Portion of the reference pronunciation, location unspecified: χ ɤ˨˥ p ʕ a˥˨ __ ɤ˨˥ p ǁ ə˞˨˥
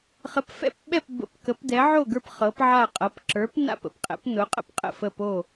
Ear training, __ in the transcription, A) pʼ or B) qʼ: B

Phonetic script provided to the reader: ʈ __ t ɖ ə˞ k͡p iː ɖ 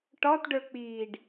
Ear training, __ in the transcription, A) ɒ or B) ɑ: A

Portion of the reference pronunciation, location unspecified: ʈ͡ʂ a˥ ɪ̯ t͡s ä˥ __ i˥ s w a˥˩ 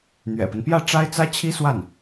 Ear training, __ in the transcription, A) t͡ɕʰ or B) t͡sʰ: A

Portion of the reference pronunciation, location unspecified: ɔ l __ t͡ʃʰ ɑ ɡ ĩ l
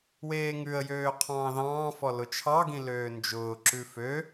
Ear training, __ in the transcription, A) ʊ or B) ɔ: A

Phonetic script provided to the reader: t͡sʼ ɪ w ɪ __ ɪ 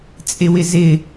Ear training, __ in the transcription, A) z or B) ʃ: A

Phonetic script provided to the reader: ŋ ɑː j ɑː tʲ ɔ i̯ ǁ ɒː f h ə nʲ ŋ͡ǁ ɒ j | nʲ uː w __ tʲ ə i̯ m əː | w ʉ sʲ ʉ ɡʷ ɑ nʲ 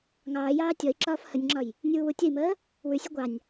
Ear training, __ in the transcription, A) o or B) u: B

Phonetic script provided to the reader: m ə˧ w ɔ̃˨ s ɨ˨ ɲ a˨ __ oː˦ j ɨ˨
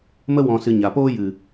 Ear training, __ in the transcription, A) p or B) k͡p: A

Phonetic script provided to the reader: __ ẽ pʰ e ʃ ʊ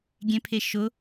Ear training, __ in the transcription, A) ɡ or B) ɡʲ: B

